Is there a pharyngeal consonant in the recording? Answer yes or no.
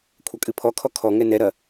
no